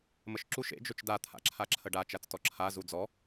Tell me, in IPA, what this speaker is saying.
m ə ʃ ǁ u ʃ ḛ d͡ʒ ɵ t͡ʃ d a t̪ʰ a̰ ǁʰ a ǁʰ ə ɖ a t͡ʃ a t͡s t ɔ ǁʰ a z u d͡z ɔ

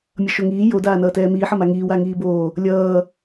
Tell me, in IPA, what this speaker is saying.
mʲ ʌ ʃ o ŋ iː j o d aː n ʌː t ɛː m iː ħ ʌ m a ŋ iː w a ŋ iː b oː | lʲ ʌː

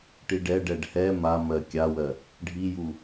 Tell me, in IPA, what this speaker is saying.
ʈ i ɖ ɛ ɖ ɛ ɖ h ɛ m a m ɜ kʲ a w ɜ | ɖʱ i j u

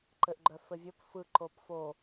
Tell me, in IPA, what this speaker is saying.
ǃ ɘ ʔ ɡ͡ǃ œ f ɘ vʲ ɵ p f ɯ ǃ o p f o

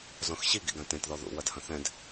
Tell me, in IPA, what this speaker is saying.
z ɔ̃ x ɕ i ɡ ḭ ɡ ã t ẽ t ð ɔ ð ṵ w ɐ d h ɐ̃ θ ɛ̃ d

